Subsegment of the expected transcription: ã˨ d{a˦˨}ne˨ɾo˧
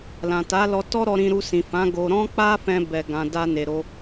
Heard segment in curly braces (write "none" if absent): a˧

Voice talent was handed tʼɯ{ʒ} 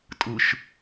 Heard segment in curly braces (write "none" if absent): ʃ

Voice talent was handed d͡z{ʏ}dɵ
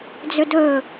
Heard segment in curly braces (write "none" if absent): ʏ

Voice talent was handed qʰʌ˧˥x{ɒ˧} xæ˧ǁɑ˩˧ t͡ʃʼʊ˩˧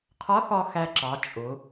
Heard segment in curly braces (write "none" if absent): ɒ˧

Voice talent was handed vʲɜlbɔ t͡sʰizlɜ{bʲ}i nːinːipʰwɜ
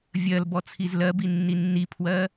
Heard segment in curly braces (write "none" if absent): b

